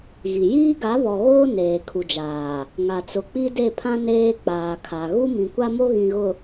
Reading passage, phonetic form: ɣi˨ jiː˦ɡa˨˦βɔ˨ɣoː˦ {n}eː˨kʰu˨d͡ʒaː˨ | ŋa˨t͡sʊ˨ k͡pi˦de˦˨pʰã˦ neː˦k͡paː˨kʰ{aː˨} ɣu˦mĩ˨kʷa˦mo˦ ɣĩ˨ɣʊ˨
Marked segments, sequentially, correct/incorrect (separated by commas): correct, incorrect